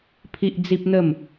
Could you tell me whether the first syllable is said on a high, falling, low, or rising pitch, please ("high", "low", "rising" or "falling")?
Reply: high